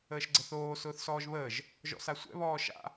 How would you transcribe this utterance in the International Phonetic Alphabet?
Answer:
əː ʃ ɡ͡ǀ ə θ oː s ʊː θ s ɔː ʒ β əː ʒ | ʒ ɔ̰ s a sʷ ɛ̰ β ɔː ʃ a̰

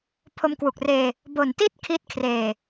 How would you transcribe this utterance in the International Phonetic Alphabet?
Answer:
pʰ o˧ m k w u˨˩ k̚ r eː˧ | b o˨˩ n t i˥˩ t̚ kʰ i˦˥ t̚ kʰ r eː˨˩

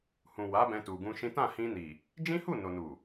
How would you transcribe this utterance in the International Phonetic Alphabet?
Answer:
h ũ˨ w a˨˦ b ɛ̃˧ t u˨ ɡ ũ˧ ʃ ĩ˦ t ã˦˨ h ĩ˧ n i˨ | d͡ʒ ĩ˦ h u˦˨ n o˨ n u˨

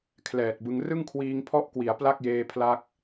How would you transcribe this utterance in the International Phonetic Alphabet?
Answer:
kʰ l ɛː˨˩ t̚ b ɯ˧ ŋ r ɯ˥˩ ŋ kʰ w iː˧ ŋ pʰ ɔ˥˩ ʔ k w i˩˦ a̯ p l a˥˩ k̚ j eː˧ pʰ l a˦˥ k̚

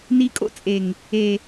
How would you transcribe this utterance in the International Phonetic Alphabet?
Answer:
n i˧ kʼ o̰˦ t͡sʼ e˨ ŋ | e˨

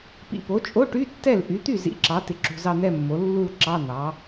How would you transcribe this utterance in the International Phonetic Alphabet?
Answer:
p ḭ˨ p o˩˥ t͡ʃʼ o˧˥˧ ʈ y˧˥˧ tː ɛ˥˩ l ʔ y˩˥ t̪ y˥˩ z ḭ˧˥˧ ǁ ɑ˩˥ t ɪ˨ ǁ ṳ˨ z ɑ˥˧ n̪ ɛ˥˧ mː o˩˥ lː u˥˧ l ǁ ɑ˧˥˧ n̪ ɑ˩˥

